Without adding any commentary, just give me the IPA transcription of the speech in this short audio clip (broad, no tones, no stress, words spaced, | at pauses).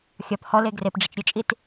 xʲɒp hɔle ɡrepɖ͡ʐɨt͡ʃ ɾʲʊt͡ʃʼit